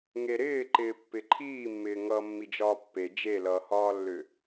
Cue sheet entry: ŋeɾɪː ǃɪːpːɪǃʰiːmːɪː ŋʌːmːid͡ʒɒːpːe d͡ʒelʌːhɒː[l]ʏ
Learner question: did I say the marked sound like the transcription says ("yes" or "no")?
no